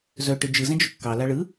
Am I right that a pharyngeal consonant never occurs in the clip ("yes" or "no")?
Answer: yes